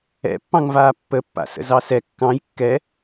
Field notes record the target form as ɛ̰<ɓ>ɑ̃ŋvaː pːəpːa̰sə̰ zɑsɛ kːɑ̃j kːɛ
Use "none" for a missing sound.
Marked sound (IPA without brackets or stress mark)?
pː